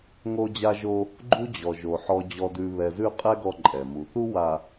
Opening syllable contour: high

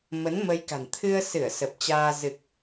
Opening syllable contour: rising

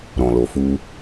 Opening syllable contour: low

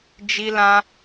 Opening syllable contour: high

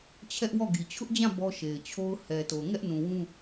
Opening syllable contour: high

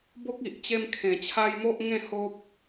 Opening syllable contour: high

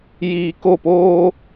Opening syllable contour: low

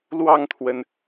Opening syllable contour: falling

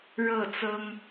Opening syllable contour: falling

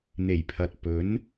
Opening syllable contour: low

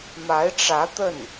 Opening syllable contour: rising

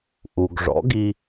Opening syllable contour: low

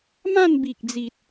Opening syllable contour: falling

